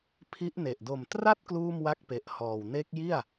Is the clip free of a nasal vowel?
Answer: yes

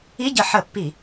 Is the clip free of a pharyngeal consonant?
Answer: no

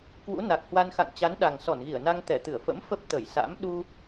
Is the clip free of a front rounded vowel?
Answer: yes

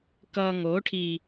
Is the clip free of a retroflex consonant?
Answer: no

